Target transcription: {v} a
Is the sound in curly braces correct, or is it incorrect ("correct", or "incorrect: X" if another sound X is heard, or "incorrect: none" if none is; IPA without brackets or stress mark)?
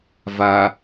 correct